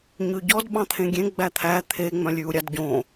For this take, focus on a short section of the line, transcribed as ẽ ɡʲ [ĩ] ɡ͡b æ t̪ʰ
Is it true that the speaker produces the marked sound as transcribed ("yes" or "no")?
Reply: no